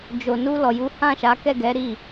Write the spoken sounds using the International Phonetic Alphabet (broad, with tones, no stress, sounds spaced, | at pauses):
d͡ʒ o˨ n u˧ l ɔ˨ j u˨˦ h ã˦˨ ʃ a˨˦ k ɛ˦˨ ɡ ɛ˨˦ ɾ i˦˨